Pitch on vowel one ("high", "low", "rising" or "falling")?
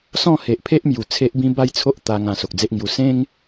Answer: falling